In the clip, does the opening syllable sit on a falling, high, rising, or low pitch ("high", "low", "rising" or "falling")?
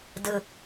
low